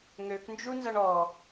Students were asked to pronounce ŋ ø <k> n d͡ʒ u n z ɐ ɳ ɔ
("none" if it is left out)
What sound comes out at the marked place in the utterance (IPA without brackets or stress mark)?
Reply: k